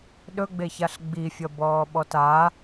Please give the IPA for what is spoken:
ɗ ɵ ɡ͡b e ç a ɬ ɡ͡b i fʲ ʌ b ɔː ɓ ɔ t a

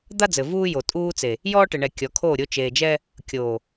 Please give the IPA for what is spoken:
d̪ a˦ d͡z ɘ˨ v uː˦ j o˨ tʼ uː˦ t͡s e˨ | j ɔː˦ ʈ ɘ˨ ɳ ɛ˨ kʲ ɔ˨˦ kʰ oː˦˨ ɾʲ o˦ t͡ʃ eː˨ d͡ʒ ɛ˦ | kʲ oː˨

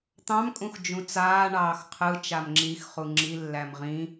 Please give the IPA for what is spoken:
t̪ ɑ̃ m kʼ ũ x d͡ʒ ũ t͡s aː ɳ ɑː x qʰ ɯ t͡ʃ a m ŋ͡ǁ i x χ u ŋ͡ǁ i lː æ m ʁ ĩ

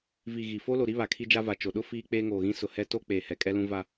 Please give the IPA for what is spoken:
v i˨ ɣ i˨ f oː˦ l o˨ ɾ i˦ β a˨ kʰ i˦ d͡ʒ a˦ v a˨ t͡ʃ o˨ ɗ ʊ˦ f iː˦ k͡p eː˦ ŋ oː˨ ɣ ĩ˦ s ʊ˨ h ɛ˦ t o˦ k͡p eː˨ h ɛ˨ kʼ ɛ˦ l ũ˦ v a˦

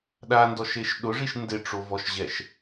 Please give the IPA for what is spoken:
ɗ a n d ɔ ʃ e ʃ ɗ ʊ ʐ i ʃ n d ɪ ʈ͡ʂ o v ɔ ʃ ʑ ɛ ʃ

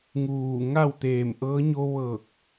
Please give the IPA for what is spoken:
ŋ uː˧˩ ŋ a˥˨ w t̪ eː˧˩ m ʔ ɤː˧˥ ɲ o˧ ʋ ɤː˧˩ k̚

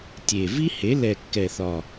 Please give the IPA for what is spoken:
tʲ e˨˩ v i˥ h e˩˥ l ɛ˨˩ kː ɛ˨˩ θ ɒ˨˩

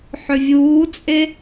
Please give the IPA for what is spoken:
ħ ʏ vʲ uː t͡sʼ e

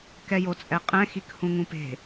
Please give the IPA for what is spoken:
k ɛ j o t͡sʼ ɛ qʼ ɛ̃ x i k h ũ ŋ ũ p e̤

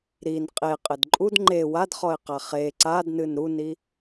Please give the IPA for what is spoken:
ɾ i n qʼ e qʼ ɘ d ǃʼ u d ŋ͡ǃ e w a d χ ɔ ɪ̯ q a χ e ǀ a d n ɨ n ɾ u n i

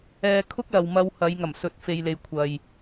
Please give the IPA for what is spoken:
ɛː˧ kʰ ʊ˥ k̚ l ɐ˨ w m ɐ˧ w h ɐ˨˧ j ŋ ɐ˨˩ m s ɵ˨˥ t̚ f e˨ j l e˨ j kʷʰ ɐ˨ j

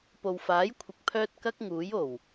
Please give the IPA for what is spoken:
p o˨ w f aː˨˥ j kʷʰ ɪ˨ k̚ pʰ œː˧ t̚ k ɐ˥ k̚ ŋ uː˨˥ j o˨˩ w

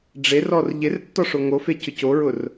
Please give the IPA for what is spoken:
ɖ͡ʐ e r ɔ r ʎ ɪ r tː ɔ ʂ o ŋ o f e c ʊ c o ɹ ʊ r

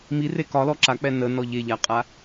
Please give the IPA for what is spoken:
m i r e k ɒ l ɔ ǁ a k͡p ɛ n ə n ɔ ʎ e ʎ a qʼ a

